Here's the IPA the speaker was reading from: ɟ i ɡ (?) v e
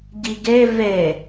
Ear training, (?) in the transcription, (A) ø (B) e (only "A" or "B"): B